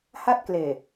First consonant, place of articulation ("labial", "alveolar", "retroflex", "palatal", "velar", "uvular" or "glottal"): glottal